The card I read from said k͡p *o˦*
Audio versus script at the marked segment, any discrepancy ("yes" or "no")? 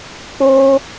no